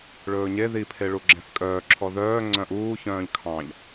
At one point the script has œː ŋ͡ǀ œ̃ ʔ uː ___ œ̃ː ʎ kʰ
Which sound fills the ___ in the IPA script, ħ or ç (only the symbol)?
ç